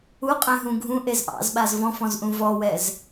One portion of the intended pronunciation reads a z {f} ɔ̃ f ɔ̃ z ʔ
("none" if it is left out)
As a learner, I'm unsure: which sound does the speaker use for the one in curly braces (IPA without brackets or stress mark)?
v